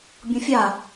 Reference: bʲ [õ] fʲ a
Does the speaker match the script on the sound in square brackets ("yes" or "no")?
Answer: yes